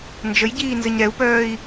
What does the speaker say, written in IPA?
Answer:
nd͡ʒəjɟiːnzəɲ ɾɛu̯pœːi̯

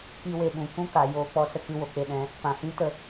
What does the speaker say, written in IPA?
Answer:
ki˧we˨ɓũ˨ kũ˦ka˨ joː˧k͡pɔ˦sə˧ kɨ˧wo˨k͡pe˧ɗɛ̃˨˦ | pã˨hĩ˦tə˧

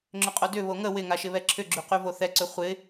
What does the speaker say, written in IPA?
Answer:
ŋ͡ǁʏqʼodʏ βoŋə wɪŋaʃɪβɛ ǁʰʏɡ͡ǁyqyvo θɛǀʏ χʷɪ

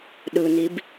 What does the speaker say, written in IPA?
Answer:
ɗɯnib

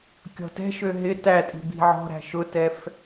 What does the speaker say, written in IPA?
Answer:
kʲɔ̤tɛ̤ʃø ɦɪ tætʼi̤ bi̤ʕɔ̤ɾæ̤ ʃʊtɛf

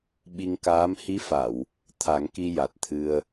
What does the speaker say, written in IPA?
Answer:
ɓi˧ŋkaː˧˥m hi˧˥fa˨˩˨w | t̪ʰa˨˩˦ŋki˧ ja˨˩t̚t̪ʰɨ˧ə̯

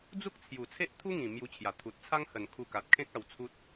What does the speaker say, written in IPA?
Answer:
d͡zu˦k̚t͡sʰju˨˩t͡sʰe˦ʔ t̪ʰu˦ŋĩ˨˩ mju˧t͡ɕʰja˨˩ t̪ʰu˨t̚t͡sʰa˦ŋhə˨˩n kʰu˧ka˨t̚ kʰẽ˦k̚ a˧wt͡sʰu˦t̚

